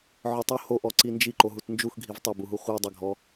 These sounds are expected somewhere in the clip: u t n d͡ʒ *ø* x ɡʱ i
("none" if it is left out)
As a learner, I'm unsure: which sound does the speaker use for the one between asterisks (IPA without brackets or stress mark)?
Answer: u